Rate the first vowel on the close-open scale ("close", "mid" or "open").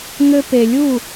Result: mid